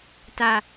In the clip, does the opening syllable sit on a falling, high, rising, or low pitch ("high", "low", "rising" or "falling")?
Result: low